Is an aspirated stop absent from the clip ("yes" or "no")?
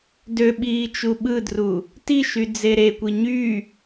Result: yes